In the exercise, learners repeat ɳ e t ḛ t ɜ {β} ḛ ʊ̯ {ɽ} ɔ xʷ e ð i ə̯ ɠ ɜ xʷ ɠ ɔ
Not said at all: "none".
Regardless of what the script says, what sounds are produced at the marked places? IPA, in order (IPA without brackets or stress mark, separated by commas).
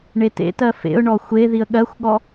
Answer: f, ɳ